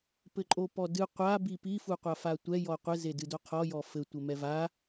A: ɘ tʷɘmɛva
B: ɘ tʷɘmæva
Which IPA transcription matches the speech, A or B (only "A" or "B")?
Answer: A